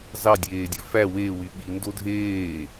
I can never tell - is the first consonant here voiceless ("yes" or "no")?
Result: no